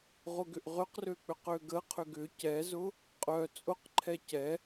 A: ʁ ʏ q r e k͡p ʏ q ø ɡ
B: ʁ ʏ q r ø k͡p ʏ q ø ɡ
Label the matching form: B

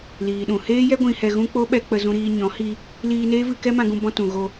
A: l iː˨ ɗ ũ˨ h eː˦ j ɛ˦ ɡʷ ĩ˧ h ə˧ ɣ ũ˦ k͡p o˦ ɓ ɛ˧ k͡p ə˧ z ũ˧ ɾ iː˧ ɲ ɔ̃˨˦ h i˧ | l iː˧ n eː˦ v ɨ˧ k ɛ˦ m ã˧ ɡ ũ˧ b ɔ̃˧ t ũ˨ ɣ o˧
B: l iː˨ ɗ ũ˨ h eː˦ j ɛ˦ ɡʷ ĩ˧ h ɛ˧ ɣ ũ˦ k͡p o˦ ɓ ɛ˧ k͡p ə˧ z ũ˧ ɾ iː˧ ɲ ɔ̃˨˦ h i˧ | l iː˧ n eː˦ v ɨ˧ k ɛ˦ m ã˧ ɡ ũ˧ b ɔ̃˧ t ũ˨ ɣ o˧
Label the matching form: B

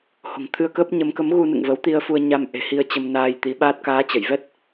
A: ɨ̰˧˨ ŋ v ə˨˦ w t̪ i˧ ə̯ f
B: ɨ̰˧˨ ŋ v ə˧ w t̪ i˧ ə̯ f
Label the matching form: A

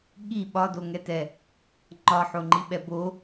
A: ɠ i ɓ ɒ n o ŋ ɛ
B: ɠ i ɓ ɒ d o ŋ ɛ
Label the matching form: B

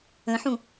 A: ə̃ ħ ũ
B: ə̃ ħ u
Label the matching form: A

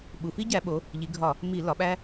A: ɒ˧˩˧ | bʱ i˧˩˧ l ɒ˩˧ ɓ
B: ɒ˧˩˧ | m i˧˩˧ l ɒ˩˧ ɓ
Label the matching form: B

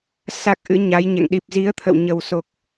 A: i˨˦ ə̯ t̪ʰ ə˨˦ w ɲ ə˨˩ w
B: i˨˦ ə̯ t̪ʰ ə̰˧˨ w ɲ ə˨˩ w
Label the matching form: B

